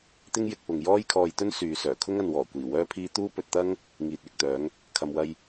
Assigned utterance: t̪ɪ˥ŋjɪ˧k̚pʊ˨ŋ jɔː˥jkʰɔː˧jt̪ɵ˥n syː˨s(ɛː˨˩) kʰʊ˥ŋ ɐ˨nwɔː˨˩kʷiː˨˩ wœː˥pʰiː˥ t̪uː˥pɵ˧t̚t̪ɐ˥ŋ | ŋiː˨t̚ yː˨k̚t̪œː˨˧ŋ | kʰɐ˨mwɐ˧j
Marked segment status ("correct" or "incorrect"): incorrect